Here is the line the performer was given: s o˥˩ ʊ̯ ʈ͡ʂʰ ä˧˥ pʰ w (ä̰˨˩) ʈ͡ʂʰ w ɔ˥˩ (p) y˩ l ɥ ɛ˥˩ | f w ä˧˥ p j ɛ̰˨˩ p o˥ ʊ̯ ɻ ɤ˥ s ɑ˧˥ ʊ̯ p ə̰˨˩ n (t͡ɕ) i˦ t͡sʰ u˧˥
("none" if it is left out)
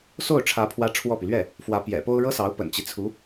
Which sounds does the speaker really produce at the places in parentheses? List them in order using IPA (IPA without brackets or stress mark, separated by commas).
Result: ä˥, p, t͡ɕ